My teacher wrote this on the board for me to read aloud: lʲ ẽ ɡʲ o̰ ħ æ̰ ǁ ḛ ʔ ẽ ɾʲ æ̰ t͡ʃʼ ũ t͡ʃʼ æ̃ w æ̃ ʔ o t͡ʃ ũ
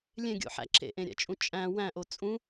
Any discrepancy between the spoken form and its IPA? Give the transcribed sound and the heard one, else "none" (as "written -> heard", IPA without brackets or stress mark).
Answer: t͡ʃ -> t͡sʼ